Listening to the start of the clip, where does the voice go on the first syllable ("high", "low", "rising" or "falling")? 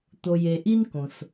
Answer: low